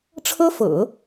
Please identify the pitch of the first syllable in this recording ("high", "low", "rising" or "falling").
high